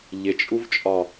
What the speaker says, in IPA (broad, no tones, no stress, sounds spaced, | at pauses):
ʎ ɪ t͡ʃʼ u v t͡ʃʼ ɒ